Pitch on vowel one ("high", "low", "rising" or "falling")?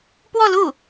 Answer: falling